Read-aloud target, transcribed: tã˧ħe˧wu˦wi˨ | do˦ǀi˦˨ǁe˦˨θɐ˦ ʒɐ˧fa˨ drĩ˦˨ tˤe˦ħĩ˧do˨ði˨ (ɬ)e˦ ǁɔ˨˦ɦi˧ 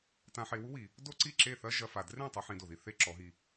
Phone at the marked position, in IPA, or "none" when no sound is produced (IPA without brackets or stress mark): θ